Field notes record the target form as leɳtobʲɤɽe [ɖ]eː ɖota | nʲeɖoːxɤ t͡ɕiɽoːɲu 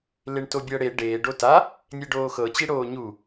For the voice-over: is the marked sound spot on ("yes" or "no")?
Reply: yes